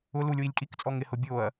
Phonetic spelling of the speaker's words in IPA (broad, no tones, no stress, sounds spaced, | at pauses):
ʊ l u lʲ w i lʲ kʼ i k t͡sʼ ɔ ŋ ɪ h ʊ bʲ o ɐ̯